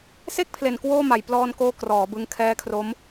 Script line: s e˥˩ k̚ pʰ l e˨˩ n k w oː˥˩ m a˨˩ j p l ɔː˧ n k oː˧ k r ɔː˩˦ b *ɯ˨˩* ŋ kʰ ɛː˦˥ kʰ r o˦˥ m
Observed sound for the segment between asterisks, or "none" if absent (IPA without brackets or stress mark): ɯ˧